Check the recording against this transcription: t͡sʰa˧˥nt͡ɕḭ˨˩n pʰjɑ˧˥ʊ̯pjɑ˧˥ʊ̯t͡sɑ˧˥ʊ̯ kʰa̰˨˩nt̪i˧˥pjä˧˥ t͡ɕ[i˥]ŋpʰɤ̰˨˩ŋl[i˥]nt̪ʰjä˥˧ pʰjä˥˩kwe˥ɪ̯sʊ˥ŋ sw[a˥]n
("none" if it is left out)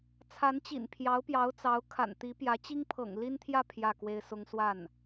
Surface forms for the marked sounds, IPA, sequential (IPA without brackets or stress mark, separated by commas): i˥, i˥, a˥˩